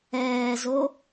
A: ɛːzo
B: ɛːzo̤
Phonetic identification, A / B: A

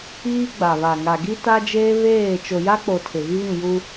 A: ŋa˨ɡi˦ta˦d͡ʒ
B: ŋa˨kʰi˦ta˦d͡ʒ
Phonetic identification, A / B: A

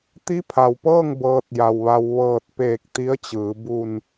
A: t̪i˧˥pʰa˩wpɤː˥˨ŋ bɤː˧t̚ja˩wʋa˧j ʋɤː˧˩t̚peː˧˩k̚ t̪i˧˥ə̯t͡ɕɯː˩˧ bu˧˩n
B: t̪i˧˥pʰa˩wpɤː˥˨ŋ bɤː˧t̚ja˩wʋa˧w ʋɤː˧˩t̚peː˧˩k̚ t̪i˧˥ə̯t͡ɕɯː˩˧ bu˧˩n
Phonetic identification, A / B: B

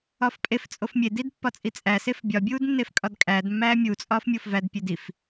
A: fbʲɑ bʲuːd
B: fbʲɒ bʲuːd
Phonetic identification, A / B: B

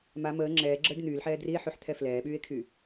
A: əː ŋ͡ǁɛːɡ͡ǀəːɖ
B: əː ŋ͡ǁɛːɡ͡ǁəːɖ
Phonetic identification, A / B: B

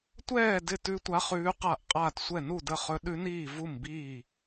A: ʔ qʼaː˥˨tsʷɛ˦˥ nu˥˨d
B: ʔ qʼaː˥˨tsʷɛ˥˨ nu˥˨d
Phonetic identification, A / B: B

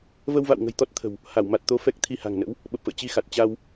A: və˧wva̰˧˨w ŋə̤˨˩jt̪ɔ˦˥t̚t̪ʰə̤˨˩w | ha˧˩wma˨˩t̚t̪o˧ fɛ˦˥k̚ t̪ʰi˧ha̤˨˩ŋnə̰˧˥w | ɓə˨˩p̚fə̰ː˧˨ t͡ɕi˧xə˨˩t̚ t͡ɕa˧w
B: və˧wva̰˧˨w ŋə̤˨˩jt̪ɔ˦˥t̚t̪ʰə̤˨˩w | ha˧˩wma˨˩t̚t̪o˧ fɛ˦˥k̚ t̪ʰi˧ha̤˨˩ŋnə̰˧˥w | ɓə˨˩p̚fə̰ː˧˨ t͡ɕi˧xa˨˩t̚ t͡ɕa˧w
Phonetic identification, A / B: B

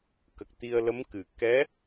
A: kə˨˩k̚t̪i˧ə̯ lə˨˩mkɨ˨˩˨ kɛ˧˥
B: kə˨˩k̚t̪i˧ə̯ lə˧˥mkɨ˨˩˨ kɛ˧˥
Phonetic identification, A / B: B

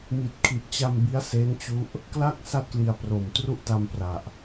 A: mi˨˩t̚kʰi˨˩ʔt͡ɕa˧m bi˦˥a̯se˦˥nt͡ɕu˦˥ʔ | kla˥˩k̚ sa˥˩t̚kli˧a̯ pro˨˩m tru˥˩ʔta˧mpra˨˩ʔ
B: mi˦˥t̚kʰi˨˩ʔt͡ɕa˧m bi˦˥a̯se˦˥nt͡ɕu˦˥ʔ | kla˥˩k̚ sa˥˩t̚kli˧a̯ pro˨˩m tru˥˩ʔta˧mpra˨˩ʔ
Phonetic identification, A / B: A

